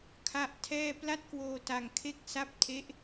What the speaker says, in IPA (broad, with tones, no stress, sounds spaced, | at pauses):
kʰ a˥˩ ʔ tʰ ɛː˥˩ p l a˦˥ t̚ k w oː˧ t a˧ ŋ kʰ e˥˩ k̚ s a˦˥ p̚ tʰ e˦˥ ʔ